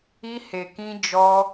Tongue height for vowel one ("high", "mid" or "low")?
high